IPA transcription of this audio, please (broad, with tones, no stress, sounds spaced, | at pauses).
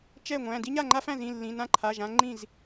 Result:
t͡ʃ ɛ˥˩ ŋʷ æ̃˩˧˩ d i˦ ɲ a˥˩ ŋ͡ǃ a˦ f æ̃˥˩ z ĩ˩˧˩ lː ĩ˩˧˩ n ã˦ ǃʰ a˩˧˩ ʒ ã˦ ŋ͡ǃ ĩ˥˩ z